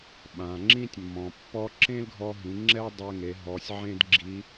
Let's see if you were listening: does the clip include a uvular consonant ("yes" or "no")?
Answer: no